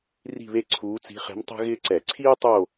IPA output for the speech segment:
r i̤˥˧ β e˥˧ ǀʰ uː˧˥ t͡s i̤˧˥ χ e̤˧˥ m tˤ e̤˥ ɣ ɪː˥ ǀ ɛ˧˩˧ ǀʰ iː˥ tˤ o˥˧

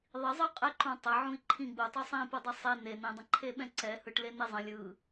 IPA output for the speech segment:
ðˤ i zˤ ɯ qʼ ɛ ǃ ũ tˤ ə ʕ ũ i̯ ǃʰ ĩ ɡ͡b u tˤ u sˤ ĩ p ɯ dˤ e sˤ e n e n ĩ dˤ ə̃ ǃʰ e ɓ ɛ̃ ǀ ɛ h ɯ ʈ l e n e zˤ ə̃ lʲ ɯ

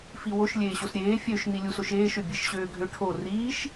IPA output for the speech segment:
f i w o ʃ lʲ eː ɕ o s ɾʲ eː fʲ ø ʃ n i lʲ u s o ʃ eː ʃ ø bʲ e ʃ ɕ øː ɡʱ ø ʈʰ o r iː ʃ

